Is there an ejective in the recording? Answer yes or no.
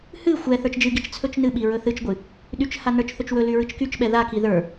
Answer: no